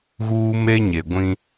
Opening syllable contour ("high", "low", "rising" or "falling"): high